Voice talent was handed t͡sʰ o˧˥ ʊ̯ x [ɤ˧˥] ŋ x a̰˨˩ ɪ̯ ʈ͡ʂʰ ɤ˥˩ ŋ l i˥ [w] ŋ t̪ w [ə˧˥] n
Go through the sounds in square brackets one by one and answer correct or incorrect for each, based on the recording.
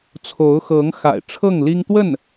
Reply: correct, incorrect: none, incorrect: ə˥˩

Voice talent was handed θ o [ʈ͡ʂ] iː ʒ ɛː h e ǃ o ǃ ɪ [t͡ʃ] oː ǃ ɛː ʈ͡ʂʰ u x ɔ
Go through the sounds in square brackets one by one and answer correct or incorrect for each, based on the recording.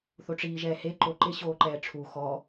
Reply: correct, incorrect: ɕ

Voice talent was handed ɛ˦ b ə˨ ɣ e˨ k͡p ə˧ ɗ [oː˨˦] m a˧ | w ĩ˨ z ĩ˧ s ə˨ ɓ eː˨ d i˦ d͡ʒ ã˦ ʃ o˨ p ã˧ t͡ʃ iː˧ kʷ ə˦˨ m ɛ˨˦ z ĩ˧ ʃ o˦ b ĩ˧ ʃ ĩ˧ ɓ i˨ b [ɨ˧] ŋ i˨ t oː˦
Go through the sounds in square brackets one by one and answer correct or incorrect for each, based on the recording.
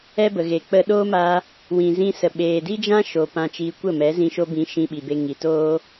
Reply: incorrect: oː˦, incorrect: e˧

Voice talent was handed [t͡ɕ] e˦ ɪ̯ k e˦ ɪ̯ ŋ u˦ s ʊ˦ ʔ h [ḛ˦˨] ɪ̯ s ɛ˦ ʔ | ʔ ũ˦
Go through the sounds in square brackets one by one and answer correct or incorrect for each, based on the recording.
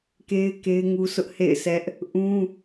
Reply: incorrect: k, correct

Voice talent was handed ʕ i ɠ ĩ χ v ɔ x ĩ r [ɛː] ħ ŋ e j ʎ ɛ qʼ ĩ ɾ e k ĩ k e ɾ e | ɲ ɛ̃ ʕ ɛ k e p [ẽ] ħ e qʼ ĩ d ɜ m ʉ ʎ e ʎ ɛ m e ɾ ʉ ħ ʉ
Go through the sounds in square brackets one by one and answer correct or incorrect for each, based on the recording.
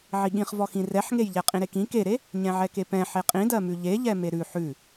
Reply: incorrect: ɛ, incorrect: ɛ̃

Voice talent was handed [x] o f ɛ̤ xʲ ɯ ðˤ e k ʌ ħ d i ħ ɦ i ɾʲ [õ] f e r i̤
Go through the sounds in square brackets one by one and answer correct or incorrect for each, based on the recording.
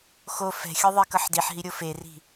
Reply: correct, incorrect: o

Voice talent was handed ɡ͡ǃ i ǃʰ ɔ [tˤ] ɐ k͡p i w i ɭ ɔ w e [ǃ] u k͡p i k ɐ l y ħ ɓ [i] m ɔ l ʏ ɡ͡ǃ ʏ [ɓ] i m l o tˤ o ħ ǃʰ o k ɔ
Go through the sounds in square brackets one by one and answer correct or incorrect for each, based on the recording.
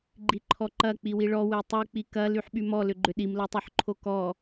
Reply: incorrect: ǃ, incorrect: tˤ, incorrect: y, incorrect: ɗ

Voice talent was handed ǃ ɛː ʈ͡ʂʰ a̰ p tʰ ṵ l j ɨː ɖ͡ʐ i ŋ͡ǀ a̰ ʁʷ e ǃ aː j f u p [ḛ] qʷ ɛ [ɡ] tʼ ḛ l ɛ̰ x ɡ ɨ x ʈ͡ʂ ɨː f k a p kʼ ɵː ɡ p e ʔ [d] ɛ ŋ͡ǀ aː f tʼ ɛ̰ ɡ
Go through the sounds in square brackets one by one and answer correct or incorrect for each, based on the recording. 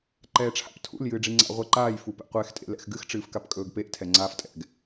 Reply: incorrect: ɛ̰, incorrect: x, incorrect: tʰ

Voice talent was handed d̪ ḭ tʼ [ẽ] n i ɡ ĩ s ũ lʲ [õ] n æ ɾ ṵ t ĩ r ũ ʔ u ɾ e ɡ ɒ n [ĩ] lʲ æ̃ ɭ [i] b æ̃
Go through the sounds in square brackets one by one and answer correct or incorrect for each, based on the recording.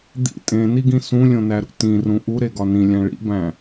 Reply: correct, correct, correct, incorrect: ḭ

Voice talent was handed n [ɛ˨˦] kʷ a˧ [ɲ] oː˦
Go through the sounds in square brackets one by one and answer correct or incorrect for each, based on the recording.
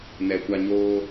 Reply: incorrect: ɛ˨, correct

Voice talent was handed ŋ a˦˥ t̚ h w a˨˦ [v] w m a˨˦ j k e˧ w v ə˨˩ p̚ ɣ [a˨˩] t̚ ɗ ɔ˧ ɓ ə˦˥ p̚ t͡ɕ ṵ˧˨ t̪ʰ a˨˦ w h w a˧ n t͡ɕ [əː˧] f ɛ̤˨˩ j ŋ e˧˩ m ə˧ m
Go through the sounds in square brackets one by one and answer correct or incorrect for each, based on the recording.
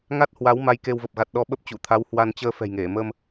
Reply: incorrect: none, correct, correct

